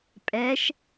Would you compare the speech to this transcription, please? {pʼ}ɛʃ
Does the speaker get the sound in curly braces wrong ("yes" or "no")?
no